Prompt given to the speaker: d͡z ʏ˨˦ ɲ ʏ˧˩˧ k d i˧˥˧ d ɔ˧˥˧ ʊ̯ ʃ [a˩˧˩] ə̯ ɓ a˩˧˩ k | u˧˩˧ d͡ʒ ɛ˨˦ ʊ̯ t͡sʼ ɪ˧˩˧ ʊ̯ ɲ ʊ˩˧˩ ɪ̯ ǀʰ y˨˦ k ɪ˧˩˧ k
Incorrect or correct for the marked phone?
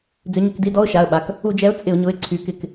correct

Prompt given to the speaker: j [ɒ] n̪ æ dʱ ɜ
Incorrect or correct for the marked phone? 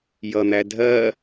incorrect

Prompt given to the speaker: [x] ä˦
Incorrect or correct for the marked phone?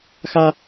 correct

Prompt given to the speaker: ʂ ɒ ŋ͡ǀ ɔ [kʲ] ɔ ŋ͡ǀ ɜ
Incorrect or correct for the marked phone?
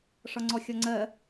incorrect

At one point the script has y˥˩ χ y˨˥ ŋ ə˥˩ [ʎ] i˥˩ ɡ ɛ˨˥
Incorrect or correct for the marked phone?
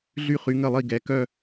incorrect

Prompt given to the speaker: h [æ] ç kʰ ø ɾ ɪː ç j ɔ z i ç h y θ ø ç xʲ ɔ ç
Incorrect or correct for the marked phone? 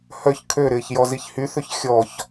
incorrect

